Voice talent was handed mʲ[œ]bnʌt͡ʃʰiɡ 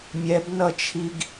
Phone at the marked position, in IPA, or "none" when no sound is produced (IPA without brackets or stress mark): ɛ